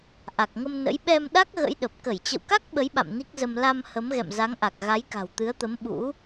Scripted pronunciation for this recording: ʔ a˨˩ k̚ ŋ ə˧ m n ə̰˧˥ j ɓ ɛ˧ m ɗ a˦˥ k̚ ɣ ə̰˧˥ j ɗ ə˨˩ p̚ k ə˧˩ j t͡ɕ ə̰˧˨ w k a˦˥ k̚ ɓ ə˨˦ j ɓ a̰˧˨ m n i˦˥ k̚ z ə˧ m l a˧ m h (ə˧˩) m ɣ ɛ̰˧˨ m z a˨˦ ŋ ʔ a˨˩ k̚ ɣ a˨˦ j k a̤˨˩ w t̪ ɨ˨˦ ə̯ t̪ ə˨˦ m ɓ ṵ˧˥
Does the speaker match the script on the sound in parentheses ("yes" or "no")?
no